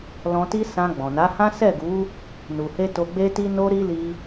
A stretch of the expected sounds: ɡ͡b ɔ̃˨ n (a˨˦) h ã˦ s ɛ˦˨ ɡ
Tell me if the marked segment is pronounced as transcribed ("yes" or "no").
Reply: yes